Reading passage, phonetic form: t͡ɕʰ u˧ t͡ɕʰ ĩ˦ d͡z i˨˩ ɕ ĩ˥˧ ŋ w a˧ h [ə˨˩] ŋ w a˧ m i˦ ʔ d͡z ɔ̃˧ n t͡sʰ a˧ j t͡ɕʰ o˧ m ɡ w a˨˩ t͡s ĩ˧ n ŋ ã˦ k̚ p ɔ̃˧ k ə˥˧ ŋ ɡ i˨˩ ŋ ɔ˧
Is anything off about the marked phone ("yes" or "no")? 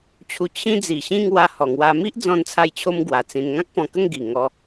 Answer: yes